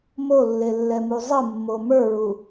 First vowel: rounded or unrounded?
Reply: rounded